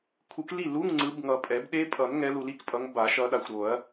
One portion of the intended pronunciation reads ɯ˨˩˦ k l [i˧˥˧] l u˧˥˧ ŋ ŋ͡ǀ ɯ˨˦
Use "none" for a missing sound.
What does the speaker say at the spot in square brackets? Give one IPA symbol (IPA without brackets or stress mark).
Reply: i˥˩